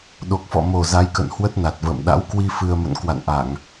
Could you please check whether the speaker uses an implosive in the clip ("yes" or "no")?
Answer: yes